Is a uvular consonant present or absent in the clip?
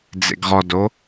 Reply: present